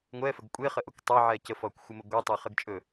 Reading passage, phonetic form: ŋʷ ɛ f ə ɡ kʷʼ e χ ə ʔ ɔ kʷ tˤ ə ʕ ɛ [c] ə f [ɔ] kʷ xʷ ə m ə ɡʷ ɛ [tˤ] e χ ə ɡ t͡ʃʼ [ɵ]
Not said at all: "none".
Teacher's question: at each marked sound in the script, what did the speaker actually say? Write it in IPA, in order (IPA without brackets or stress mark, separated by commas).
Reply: c, ɔ, tˤ, ɵ